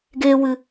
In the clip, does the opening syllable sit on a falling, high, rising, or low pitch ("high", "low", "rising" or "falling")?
high